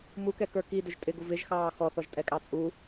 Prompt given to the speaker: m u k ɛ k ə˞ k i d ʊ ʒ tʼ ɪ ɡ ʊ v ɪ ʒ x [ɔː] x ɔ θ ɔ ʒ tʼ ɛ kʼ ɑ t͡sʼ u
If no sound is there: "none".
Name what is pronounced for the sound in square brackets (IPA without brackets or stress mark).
ɑː